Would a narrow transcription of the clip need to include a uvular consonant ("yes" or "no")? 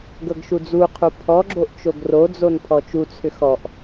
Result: yes